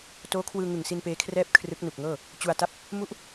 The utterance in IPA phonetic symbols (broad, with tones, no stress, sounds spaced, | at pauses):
t oː˦˥ kʰ w ɯː˧ ŋ ɯ˨˩ ŋ s i˧ n p eː˦˥ kʰ r ɛː˥˩ p̚ kʰ r ɯ˦˥ k̚ n u˨˩ k̚ ŋ ɤː˥˩ | t͡ɕ u˧ a̯ t a˥˩ p̚ | m u˦˥ ʔ